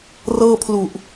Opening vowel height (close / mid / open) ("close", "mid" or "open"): mid